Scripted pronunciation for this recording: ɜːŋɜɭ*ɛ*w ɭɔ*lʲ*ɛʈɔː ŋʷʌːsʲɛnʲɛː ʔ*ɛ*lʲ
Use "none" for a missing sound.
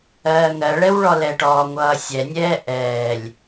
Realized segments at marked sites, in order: ɛ, l, ɛː

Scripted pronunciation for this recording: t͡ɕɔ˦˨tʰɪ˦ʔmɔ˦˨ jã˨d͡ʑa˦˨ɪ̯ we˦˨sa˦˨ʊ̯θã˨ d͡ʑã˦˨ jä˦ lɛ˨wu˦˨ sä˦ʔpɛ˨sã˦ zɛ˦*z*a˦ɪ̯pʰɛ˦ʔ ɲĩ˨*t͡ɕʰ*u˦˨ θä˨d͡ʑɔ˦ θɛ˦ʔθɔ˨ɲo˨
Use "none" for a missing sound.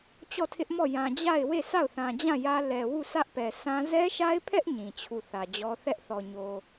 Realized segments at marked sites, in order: ʃ, t͡ɕʰ

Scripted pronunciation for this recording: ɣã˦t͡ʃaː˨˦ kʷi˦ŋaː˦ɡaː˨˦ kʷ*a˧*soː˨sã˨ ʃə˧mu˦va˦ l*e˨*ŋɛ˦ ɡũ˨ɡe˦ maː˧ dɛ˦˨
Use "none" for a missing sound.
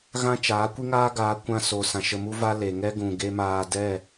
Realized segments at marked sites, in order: ã˧, e˨

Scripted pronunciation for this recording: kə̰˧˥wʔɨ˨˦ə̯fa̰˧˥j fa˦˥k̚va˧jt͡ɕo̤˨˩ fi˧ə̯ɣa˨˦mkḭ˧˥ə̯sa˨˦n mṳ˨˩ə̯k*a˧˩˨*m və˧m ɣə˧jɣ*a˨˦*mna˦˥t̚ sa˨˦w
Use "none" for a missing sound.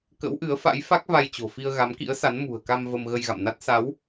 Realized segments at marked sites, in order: a˧, a̰˧˨

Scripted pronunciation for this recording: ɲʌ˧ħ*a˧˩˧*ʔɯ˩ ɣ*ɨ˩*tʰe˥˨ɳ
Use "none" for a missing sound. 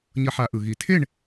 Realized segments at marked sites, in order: a˧˩˧, i˩

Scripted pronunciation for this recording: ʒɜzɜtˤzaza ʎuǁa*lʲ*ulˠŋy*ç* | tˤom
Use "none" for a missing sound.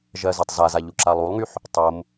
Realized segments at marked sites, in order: lˠ, ħ

